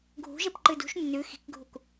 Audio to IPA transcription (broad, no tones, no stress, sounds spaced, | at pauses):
ɡʱ ṳ ʒ e p ǃ ɨ d ṳ ʃ nː ʉ x i̤ k ɡʱ u k